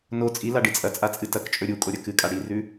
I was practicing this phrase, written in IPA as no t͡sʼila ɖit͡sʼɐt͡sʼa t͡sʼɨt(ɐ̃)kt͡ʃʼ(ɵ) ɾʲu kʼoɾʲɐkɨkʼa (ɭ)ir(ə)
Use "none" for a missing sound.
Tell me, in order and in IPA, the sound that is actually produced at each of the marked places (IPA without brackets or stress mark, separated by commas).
ɐ, ɵ, ɽ, ʉ